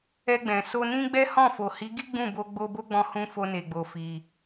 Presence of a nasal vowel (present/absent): present